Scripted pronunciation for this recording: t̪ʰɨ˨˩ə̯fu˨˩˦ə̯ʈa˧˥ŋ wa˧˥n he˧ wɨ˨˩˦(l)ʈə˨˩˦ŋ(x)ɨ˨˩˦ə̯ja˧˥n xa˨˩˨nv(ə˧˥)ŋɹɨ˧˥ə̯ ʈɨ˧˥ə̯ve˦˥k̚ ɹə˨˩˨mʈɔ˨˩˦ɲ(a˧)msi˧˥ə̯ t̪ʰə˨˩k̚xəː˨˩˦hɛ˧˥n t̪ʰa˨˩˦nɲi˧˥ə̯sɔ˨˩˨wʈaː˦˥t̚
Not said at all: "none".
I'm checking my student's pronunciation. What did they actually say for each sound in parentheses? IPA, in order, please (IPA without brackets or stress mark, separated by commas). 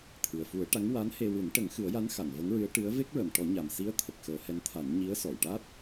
n, x, ə˧˥, a˨˩